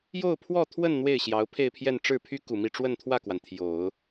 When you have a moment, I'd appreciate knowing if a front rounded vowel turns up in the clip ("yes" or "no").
yes